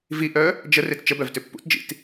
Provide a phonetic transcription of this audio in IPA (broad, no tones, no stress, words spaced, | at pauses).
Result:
viʔœ | d͡ʒə rett͡ʃəbœv tʏpːṵtd͡ʒḭt